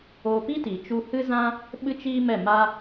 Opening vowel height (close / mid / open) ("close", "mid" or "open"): mid